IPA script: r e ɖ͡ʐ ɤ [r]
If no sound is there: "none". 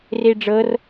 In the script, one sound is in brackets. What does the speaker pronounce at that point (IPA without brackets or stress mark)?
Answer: r